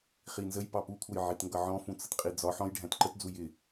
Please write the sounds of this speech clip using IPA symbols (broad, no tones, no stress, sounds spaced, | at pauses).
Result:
χ i n z ə j p ɑ p u kʷʰ ʌ j ʕ i t ŋ ɡ ʌ ʕ ɔ̃ f ũ t͡s ə t qʼ i d͡z ɒ ħ ɔ̃ j ɖʱ æ̃ t ǃ ə t d͡z u j ɪ